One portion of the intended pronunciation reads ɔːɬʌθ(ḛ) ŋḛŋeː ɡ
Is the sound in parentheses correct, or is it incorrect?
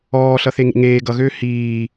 incorrect